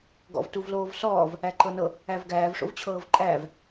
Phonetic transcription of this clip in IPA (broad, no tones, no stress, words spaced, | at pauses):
ɡɔ̰vtuvloːvsɔːv | æǃɤnɤ | ævɡæːv ʂo̰vt͡ɕʰɤːvǃʼæːv